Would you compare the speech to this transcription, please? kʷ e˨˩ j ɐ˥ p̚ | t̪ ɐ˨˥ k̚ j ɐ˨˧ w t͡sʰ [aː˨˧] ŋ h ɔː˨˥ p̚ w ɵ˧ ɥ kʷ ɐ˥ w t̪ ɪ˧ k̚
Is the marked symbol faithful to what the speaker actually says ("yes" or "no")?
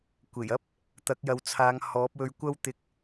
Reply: yes